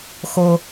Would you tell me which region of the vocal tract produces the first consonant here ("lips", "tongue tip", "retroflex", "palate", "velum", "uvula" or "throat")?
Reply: velum